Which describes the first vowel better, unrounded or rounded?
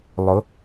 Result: rounded